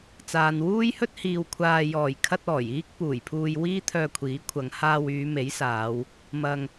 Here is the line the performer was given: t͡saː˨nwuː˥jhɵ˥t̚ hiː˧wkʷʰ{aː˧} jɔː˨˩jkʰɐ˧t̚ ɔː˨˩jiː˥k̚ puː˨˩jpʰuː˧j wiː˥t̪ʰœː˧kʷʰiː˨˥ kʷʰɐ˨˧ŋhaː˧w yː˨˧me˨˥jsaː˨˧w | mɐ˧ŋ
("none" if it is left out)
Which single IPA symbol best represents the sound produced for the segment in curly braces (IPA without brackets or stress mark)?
aː˧